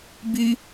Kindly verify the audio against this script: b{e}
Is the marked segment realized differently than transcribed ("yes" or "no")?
yes